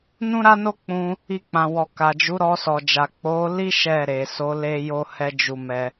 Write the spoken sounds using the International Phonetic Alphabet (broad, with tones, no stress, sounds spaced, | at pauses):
n ũ˦ ɾ a˦ n o˦ k͡p ũ˧ | i˧ k͡p ã˨ w ɔ˨ k a˨ d͡ʒ u˨˦ ɾ ɔ˧ s ɔ˨ d͡ʒ a˨ k͡p o˨˦ l i˦ ʃ ɛ˦˨ ɾ e˨ s o˨˦ l e˦ j o˦ h ɛ˦ d͡ʒ u˧ m ɛ˧